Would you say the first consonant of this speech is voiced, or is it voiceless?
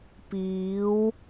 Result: voiceless